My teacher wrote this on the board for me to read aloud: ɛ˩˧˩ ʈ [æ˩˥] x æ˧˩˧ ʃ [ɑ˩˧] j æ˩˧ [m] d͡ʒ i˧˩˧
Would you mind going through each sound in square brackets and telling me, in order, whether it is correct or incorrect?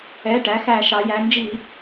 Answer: incorrect, correct, incorrect

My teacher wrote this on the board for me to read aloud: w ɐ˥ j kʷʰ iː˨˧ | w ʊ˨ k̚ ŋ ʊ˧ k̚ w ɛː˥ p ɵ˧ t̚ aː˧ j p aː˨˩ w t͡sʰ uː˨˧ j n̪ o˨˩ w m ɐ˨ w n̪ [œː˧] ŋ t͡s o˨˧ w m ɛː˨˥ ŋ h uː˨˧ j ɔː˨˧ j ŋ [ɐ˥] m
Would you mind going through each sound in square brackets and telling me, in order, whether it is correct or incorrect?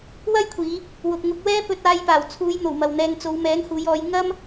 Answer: incorrect, correct

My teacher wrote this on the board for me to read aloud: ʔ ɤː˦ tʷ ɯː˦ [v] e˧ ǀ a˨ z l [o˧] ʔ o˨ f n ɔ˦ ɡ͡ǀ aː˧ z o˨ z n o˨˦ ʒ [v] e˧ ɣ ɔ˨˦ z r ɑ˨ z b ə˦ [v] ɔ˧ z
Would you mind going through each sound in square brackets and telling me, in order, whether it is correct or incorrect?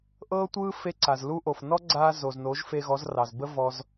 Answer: incorrect, incorrect, incorrect, correct

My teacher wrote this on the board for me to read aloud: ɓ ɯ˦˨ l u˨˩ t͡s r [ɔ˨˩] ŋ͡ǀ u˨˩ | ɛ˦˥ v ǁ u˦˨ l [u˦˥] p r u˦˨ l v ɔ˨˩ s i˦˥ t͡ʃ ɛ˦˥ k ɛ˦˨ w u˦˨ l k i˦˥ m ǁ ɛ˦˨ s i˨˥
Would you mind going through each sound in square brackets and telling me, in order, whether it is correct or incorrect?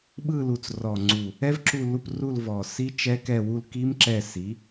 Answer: correct, incorrect

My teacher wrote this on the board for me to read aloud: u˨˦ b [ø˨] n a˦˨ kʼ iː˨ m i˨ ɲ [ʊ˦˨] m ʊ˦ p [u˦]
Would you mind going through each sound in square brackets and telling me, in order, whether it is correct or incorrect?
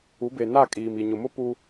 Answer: incorrect, incorrect, correct

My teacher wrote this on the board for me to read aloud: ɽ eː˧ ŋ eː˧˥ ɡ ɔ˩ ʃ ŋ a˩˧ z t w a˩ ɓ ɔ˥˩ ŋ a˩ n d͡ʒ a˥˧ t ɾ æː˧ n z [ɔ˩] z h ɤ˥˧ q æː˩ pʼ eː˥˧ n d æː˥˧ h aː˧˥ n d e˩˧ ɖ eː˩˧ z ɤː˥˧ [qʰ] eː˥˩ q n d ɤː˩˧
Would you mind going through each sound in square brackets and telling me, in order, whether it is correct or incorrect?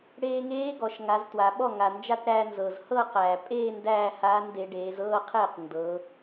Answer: incorrect, correct

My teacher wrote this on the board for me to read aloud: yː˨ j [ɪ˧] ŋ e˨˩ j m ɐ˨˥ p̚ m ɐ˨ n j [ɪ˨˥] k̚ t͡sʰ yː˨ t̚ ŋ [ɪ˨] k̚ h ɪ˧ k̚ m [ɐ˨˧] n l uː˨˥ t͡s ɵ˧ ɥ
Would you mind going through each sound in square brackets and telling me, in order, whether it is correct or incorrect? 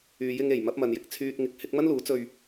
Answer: correct, incorrect, correct, incorrect

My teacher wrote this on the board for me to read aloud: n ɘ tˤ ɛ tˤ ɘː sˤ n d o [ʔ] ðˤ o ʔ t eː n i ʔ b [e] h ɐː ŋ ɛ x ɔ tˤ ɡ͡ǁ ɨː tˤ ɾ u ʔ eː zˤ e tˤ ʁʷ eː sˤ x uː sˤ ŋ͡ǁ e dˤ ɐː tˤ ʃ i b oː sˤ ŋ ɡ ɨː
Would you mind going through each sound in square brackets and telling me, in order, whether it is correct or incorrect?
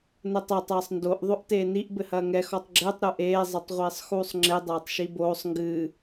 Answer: correct, incorrect

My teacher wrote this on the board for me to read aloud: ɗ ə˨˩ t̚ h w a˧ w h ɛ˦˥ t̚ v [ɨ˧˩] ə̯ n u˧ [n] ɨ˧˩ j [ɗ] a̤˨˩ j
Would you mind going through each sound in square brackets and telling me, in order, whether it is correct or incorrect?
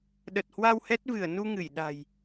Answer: correct, incorrect, correct

